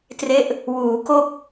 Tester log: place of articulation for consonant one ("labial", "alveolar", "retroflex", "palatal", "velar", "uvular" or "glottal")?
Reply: alveolar